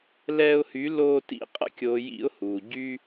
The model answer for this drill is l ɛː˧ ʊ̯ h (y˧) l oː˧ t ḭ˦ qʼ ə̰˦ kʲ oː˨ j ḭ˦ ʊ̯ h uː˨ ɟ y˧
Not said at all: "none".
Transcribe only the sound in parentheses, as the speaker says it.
y˨˦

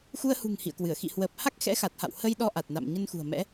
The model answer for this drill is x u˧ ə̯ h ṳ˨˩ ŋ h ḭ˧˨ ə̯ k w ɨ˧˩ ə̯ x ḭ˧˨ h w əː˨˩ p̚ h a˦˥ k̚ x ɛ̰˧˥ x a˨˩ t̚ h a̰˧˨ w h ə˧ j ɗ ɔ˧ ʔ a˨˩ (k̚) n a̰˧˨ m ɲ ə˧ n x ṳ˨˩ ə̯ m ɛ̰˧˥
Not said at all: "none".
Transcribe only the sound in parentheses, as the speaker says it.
t̚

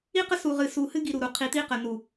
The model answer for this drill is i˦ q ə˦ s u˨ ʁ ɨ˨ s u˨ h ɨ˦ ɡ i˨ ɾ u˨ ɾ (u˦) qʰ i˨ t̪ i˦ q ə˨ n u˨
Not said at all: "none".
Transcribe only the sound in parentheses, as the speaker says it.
u˨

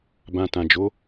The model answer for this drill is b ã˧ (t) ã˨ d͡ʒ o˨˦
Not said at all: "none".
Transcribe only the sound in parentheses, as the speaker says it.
t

